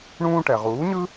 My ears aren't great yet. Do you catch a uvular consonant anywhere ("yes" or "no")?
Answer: yes